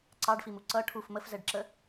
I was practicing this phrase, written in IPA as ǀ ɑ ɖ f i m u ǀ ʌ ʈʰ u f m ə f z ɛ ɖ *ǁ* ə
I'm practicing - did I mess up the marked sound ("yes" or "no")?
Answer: no